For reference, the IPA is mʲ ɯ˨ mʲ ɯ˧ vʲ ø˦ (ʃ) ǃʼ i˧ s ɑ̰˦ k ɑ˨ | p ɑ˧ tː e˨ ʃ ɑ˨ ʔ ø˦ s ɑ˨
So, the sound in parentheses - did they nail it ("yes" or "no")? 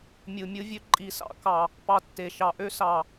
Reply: no